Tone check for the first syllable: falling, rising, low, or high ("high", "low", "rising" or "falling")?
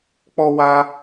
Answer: high